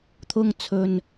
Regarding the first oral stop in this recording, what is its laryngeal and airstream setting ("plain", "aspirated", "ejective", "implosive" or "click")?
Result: aspirated